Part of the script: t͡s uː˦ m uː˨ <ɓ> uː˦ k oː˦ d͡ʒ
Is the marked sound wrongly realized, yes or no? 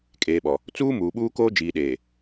no